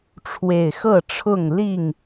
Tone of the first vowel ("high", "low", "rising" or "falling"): low